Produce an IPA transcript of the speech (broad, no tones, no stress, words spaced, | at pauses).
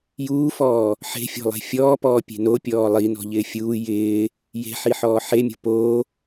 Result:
juːfɔː | ħe̤fʲɔ̤lˠe̤ fʲɔːpɔːpʲe̤ nopʲɔː lˠinɔ̤ʎɪː fʲuː jɪː | je̤ħiħɔː ħemʲo̤ poː